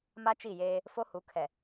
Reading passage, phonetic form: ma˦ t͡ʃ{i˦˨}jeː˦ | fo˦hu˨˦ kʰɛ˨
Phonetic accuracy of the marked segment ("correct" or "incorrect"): correct